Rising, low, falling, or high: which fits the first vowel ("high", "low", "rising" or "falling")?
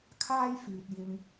high